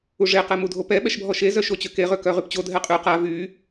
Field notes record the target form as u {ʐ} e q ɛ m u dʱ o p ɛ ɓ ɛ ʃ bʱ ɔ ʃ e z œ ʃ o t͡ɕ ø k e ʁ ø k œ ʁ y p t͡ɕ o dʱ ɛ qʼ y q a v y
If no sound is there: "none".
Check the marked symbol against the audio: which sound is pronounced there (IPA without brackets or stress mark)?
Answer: ʐ